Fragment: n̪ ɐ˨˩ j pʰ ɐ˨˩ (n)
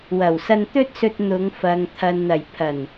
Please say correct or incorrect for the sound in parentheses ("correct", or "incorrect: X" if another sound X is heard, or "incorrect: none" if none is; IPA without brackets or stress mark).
correct